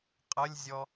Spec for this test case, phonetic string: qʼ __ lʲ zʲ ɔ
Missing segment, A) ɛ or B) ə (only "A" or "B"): B